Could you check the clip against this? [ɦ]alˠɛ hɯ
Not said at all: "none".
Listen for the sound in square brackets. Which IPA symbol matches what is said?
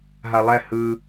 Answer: ɦ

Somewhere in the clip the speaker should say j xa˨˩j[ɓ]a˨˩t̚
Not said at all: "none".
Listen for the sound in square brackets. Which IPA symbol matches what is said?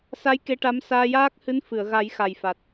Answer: f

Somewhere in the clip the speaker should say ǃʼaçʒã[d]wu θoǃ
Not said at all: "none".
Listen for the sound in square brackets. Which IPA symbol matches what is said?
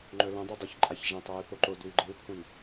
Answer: tˤ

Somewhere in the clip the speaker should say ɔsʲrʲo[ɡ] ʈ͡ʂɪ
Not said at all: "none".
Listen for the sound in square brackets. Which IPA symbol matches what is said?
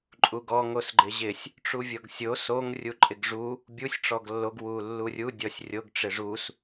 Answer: ɡ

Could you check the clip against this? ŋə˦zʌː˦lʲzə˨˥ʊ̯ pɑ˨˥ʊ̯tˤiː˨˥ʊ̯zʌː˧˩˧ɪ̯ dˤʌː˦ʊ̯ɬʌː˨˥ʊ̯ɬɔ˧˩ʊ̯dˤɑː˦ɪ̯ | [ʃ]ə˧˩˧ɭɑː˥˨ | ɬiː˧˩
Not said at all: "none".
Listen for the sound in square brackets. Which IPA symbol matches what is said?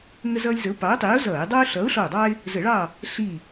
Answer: z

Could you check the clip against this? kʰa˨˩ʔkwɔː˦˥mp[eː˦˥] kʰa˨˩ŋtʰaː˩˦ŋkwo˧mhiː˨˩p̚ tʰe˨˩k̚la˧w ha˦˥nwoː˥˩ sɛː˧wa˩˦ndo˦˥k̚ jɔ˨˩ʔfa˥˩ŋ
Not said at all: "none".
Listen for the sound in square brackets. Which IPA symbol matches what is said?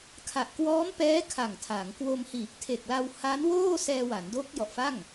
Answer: ɛː˦˥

